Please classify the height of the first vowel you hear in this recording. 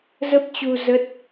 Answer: mid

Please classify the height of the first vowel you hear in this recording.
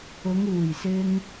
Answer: high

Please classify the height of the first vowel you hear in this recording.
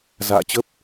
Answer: low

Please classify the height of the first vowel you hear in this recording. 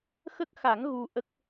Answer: mid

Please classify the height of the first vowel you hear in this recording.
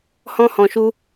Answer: mid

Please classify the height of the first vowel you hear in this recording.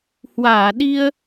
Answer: low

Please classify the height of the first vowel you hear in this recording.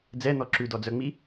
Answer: mid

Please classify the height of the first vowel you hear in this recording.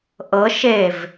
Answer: mid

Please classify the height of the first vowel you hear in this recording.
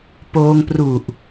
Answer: mid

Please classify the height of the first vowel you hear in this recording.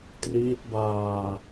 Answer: high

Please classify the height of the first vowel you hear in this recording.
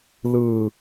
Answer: high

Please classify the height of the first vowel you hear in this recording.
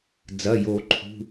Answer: low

